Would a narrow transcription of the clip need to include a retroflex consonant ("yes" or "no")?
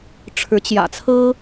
yes